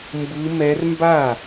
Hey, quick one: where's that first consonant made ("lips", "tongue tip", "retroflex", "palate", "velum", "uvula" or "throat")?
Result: lips